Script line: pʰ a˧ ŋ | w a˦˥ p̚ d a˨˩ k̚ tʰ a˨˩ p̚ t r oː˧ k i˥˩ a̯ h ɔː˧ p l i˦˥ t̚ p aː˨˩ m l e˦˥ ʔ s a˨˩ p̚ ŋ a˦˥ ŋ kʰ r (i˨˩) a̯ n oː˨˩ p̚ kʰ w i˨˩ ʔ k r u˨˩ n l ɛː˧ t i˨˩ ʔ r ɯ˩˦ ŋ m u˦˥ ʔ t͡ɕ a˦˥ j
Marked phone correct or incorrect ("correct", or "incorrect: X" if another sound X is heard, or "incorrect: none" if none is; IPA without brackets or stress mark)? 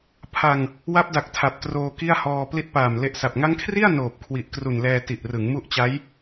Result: incorrect: i˥˩